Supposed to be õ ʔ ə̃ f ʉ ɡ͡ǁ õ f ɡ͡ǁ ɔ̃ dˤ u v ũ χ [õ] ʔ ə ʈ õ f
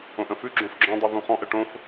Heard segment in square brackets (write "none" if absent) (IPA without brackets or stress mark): ɔ̃